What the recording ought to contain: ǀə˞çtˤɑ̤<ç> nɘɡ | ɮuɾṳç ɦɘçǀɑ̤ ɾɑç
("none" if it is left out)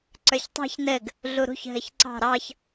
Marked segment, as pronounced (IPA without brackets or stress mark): ç